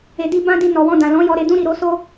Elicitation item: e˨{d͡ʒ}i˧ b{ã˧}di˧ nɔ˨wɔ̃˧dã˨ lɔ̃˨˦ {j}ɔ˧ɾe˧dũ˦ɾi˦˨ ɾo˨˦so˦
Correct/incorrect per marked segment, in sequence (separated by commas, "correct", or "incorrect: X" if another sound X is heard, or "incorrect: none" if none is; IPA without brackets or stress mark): incorrect: d, incorrect: ã˦, correct